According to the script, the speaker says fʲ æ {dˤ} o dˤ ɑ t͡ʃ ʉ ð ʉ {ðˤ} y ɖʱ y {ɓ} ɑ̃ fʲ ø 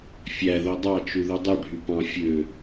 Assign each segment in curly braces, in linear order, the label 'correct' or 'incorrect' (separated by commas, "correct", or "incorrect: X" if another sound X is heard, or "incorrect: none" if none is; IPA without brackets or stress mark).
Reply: incorrect: ð, incorrect: dˤ, incorrect: p